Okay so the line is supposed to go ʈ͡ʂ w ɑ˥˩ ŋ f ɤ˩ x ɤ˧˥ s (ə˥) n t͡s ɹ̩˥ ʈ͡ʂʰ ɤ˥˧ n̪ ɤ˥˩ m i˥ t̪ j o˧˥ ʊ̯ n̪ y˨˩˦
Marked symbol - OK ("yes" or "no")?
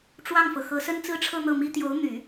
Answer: yes